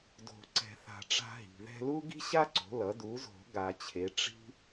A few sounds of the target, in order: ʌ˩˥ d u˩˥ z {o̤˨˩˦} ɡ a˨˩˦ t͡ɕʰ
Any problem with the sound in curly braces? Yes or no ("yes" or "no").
no